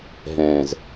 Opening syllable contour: low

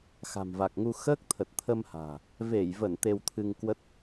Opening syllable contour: low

